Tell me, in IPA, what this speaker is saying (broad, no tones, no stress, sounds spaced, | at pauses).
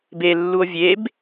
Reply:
b e lː u o̯ vʲ e b